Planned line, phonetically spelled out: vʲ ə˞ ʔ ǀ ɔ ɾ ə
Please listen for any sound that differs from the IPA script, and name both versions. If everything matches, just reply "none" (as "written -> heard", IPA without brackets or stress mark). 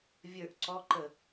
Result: ɾ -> ǃ